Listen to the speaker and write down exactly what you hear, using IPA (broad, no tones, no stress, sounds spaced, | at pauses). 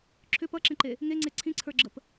ǁʰ ʏ p ʌ ǁ ẽ ǃ e | ŋ e ŋ͡ǀ e ǀʰ ĩ ǀʰ ə˞ ɡ͡ǁ ə p